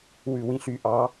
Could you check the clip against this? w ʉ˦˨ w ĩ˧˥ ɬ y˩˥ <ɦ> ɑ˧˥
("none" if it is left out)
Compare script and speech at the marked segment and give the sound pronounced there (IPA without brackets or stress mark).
ʔ